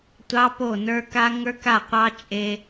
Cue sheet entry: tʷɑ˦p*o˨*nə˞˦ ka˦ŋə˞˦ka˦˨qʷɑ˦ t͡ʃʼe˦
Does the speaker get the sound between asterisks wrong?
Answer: yes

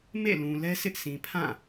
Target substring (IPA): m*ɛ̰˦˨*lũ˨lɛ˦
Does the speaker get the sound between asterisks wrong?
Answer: yes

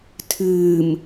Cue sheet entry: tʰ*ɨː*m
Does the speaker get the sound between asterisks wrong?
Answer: no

